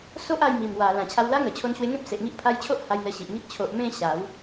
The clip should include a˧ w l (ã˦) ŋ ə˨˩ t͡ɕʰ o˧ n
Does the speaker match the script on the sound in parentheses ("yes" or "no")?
no